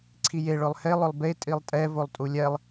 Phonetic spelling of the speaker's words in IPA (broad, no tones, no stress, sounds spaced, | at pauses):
ǀʰ i j e ɭ ʊ lˠ h e lˠ ʊ lˠ b e tʼ i lˠ tʼ ɛ v o lˠ tʼ u lʲ ɛ lˠ